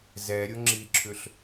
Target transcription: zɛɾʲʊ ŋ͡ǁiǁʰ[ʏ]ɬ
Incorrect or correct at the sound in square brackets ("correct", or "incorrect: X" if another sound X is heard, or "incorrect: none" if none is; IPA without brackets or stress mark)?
correct